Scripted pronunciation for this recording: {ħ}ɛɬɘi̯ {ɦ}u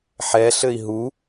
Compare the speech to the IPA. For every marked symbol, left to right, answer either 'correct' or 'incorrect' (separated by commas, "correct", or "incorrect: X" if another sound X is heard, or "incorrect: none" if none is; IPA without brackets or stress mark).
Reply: correct, correct